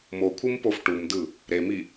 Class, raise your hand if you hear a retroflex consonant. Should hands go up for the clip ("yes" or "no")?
yes